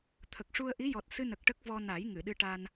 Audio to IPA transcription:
t̪ʰ ə˨˩ k̚ ʂ u˧ ə̯ ʔ i˧˥ j ɔ˨˩ t̚ s ɨ˧ n ə˨˩ k̚ ʈ ə˦˥ k̚ v ɔ˧ n a˨˩˦ j ŋ ɨ˨˩˨ ɗ ɨ˧ ʈ a˧ n

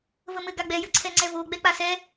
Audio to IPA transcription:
v ə m ɘ ɡ a ɡ͡b ɛ j ə ǀʰ ɛ ŋ͡ǀ ɛ v o ɡ͡b ɛ k͡p a s ɛ

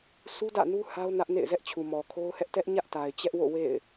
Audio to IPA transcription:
s u˦ d ä̰˦˨ n u˦ h a˦ ʊ̯ n ä˦ ʔ n ḛ˦˨ ɪ̯ z ɛ˦ ʔ t͡ɕʰ u˨ m ɔ˨ kʰ o˦ ʊ̯ h ɛ˦ ʔ t ɛ˦ ʔ ɲ ä˦ ʔ t a˨ ɪ̯ t͡ɕ ɛ˦ ʔ w o̰˦˨ w ḛ˦˨ ɪ̯

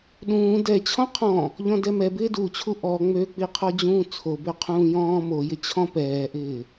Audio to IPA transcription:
ɗ ũː d ɛ t͡ɕʰ ɔ̃ qʰ ɔ̃ | ʎ ɔ̃ d ɛ m ɛ b ɪː d u t͡ɕʰ u ʔ ɔ ŋ͡m ø k͡p i qʰ ɔ d͡ʑ ũː t͡sʰ o b ø qʰ ũː j ɔ̃ː m o j ɪ t͡ɕʰ ɔ̃ p ɛː ʔ ɪː

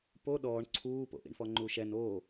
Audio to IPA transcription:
p o ɗ ɔː ɳ ǀʰ uː p o̰ ʔ ḭ ɳ f ɔ ŋ͡ǃ u ʃ ɛ n oː

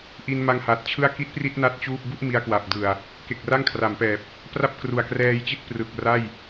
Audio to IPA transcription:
ʔ i˧ n m a˧ ŋ h a˨˩ t̚ t͡ɕʰ ɯ˥˩ a̯ k i˦˥ t̚ p r i˥˩ t̚ n a˦˥ t̚ t͡ɕ uː˥˩ p̚ b u˥˩ ʔ m i˧ a̯ k w a˨˩ p̚ d ɯ˨˩ a̯ | k e˨˩ k̚ r a˥˩ ŋ kʰ r a˩˦ m p ɛː˨˩ p̚ | p r a˥˩ p̚ k r u˨˩ a̯ k r ɛː˧ j t͡ɕ i˦˥ t̚ p r ɯ˨˩ k̚ r a˥˩ j

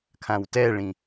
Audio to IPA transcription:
kʰ ã w t ɛ ɭ ĩ

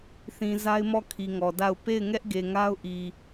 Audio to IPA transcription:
θ ĩ˨ z a˦ ɪ̯ m ɔ˦˨ kʰ i˨ ŋ ɔ˨ d a˦˨ ʊ̯ p e˦˨ ɪ̯ ŋ ɛ˦ ʔ ɡ e˨ ŋ a˦ ʊ̯ ʔ i˨

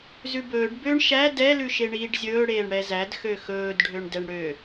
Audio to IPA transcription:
z ʉ b ɵː ɖ b ø ɳ ʃ æ d ɛ l ʉ ʃ e ɳ iː ɖ zʲ ɵː ɽ eː ɳ ɽ ɛ z æ d x ø x ɵː d ɖʱ ø ɳ d ɛ ɳ ɽ ø

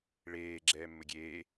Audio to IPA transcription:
ɭ eː ɡ͡ǁ ɛː mː ɘ ɡʲ eː

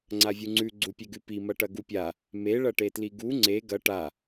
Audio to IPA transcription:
ŋ͡ǀ a vʲ u ŋ͡ǀ ʉ ɡ͡ǀ u pʲ e ɡ ʉ p i m ɐ ʈ ɐ ɡ u pʲ a | m e ɭ ɐ ʈ e t l i ɡ u ŋ͡ǀ e ɡ ɐ ʈ a

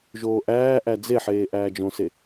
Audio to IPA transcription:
ʒ oː ʔ æː ʔ æ d͡z e ħ eː ʔ æː d͡ʒ õ s e

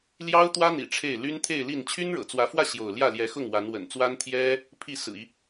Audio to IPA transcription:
l j ɑ˥ ʊ̯ t̪ w ä˥ n̪ ḭ˨˩ ʈ͡ʂʰ e˥˩ ɪ̯ l y˥ n t̪ʰ e˥˧ ɪ̯ l i˥˩ n t͡ɕʰ y˥ n ɻ ɤ̰˨˩ t͡s w ä˧˥ f w ä˥˧ ɕ j o˥˧ ʊ̯ l j ä˥˩ l j ɛ˧˥ x ʊ˥˩ ŋ w a˧˥ n w ə̰˨˩ n t͡s w a˥ n t̪ʰ j ɛ˥ | pʰ i˥˩ s ɹ̩˨˩ i˦

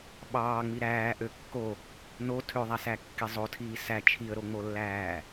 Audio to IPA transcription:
ɓ ɑː ŋ͡m i ɾ æː ʔ ø kː o | n o tʰ ø ðˤ æ s æ kː i zˤ o tʰ iː s æ t͡ʃʰ i ə̯ ɾ o ŋ͡m o lː æː

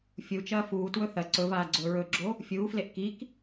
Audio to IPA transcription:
fʲ u t͡ʃ ɐː f uː t w ɵ θ ɐ ǀ ɵ v aː ɡ͡ǀ ɵː ɹ ɵ ɡ͡ǁ o | fʲ uː f l e ʔ k i k

